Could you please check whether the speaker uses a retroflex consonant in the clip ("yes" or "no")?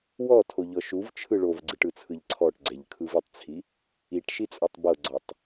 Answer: yes